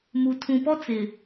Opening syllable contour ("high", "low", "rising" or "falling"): low